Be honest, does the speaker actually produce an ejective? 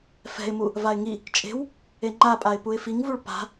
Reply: yes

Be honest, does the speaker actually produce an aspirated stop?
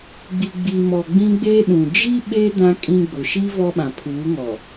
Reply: yes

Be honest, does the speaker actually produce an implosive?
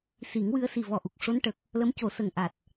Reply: no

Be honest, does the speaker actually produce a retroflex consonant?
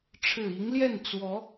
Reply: yes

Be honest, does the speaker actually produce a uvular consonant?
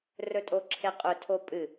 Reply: yes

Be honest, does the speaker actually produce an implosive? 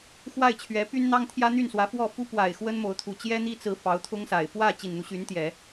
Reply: no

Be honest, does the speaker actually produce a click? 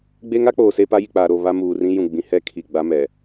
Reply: no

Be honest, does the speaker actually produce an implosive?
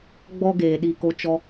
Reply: yes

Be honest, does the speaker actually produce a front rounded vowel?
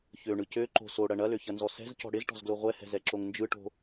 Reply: yes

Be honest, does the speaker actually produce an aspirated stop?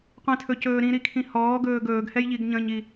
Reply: yes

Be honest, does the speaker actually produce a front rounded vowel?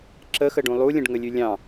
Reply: no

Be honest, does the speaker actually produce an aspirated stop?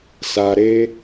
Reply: no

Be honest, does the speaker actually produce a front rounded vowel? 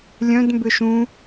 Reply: yes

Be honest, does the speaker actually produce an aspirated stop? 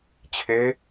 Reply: yes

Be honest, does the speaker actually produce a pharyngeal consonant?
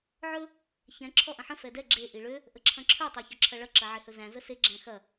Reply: yes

